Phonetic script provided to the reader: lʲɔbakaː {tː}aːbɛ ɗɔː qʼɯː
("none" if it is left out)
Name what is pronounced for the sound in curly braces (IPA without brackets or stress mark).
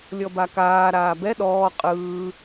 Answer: ɾ